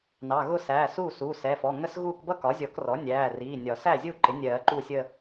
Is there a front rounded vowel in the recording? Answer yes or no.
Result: no